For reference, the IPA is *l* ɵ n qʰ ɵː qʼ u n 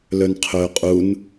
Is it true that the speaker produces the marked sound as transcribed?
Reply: yes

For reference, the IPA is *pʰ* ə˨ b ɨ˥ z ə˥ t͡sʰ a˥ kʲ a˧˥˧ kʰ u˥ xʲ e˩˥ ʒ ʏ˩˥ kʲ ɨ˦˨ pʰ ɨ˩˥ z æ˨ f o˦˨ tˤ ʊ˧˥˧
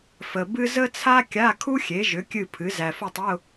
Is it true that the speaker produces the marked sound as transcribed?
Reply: no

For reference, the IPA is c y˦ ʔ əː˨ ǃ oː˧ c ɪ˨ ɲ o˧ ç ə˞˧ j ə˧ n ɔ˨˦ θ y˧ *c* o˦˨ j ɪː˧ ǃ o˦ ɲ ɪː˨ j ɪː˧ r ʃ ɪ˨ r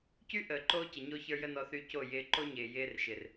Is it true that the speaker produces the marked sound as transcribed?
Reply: yes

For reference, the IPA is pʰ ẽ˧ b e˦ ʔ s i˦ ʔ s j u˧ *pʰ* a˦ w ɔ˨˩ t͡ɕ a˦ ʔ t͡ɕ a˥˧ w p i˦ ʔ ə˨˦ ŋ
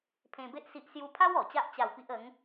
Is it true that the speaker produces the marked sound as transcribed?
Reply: yes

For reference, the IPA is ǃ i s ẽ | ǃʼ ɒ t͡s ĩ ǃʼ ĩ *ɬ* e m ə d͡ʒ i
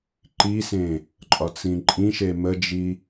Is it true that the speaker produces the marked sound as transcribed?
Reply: no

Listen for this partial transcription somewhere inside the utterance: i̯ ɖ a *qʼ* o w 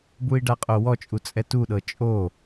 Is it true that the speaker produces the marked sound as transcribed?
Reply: yes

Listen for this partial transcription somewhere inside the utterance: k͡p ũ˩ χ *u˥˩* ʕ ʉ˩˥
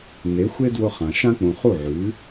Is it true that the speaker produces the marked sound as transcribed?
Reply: yes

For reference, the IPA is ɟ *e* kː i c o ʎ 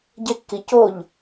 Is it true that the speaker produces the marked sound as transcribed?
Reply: yes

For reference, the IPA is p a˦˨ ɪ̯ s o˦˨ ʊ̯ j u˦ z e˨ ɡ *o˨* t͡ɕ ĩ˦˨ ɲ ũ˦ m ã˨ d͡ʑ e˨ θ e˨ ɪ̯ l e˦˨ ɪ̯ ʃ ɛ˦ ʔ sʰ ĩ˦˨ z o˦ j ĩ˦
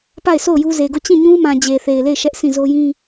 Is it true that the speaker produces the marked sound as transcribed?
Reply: no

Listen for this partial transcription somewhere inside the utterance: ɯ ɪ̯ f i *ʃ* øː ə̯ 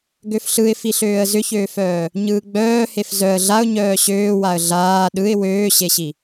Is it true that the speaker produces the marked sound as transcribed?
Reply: no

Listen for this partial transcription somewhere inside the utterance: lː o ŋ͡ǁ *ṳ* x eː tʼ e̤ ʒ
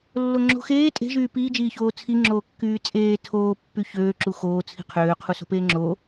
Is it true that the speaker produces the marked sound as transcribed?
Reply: no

